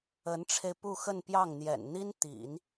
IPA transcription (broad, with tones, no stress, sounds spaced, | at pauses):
ə˧˥ n ʈ͡ʂʰ e˧ ɪ̯ p u˥˧ x ə˥˧ n p j ɑ˥˩ ŋ n̪ j ɛ̰˨˩ n n̪ i˥ n t̪ ḭ˨˩˦ n